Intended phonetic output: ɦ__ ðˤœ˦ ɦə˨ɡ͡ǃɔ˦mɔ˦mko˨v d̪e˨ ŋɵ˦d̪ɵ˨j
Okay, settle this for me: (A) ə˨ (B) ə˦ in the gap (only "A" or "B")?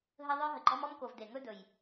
B